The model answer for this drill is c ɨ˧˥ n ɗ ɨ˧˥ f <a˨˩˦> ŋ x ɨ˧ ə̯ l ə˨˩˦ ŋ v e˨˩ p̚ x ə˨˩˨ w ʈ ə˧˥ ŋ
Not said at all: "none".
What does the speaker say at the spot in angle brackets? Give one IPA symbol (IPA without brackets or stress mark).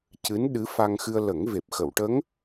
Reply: a˧